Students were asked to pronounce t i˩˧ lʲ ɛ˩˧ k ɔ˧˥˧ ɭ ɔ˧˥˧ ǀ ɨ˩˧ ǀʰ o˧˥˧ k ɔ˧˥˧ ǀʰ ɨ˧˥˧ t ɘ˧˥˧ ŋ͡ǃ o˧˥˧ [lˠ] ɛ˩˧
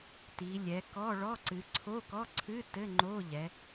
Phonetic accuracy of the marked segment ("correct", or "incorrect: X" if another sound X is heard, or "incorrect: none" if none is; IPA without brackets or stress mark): incorrect: ʎ